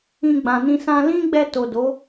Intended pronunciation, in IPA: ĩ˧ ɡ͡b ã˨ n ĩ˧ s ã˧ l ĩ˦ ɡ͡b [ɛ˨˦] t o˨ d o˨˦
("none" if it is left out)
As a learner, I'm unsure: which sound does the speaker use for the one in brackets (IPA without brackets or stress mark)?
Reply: ɛ˧